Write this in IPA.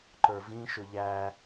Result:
ǃ ə˞ v ĩ ʃ ʊ ʎ æ

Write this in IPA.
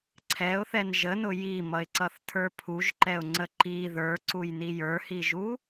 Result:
ǀʰ ɛ ʊ̯ θ ɛ n ʒ ə n ʊ j i m ʌ ɪ̯ ǀ ʌ θ tʰ ə˞ pʰ u ʒ ǃ ɛ ʊ̯ ŋ͡ǀ ə ǃ i ð ə˞ ǀ u j n i j ə˞ h i ʒ u

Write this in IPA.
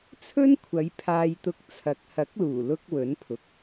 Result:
t͡sʰ ɵ˥ n kʷʰ ɐ˨˧ j pʰ aː˧ j t̪ ʊ˧ k̚ t͡sʰ ɐ˨˥ k̚ h ɐ˨˥ k̚ l uː˨˩ l ʊ˧ k̚ w ɵ˨˥ n pʰ ʊ˨ k̚

